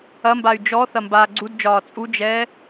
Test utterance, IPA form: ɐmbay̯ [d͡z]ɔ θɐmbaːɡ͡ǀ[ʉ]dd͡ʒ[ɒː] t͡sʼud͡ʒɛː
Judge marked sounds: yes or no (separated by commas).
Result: no, no, yes